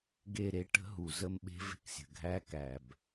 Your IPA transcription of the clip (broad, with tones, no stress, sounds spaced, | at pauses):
ɡ e˦˨ ɾ e˦ ʈ ə̤˦ ɦ u˨ z ə˦ m ɓ e̤˦ v e̤˦ k sʲ ə̤˨ ɡʱ æ˦ k æ˨ b